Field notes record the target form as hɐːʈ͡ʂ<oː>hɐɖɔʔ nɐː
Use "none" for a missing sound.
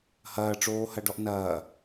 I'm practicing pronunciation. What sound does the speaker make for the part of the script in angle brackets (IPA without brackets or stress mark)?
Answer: oː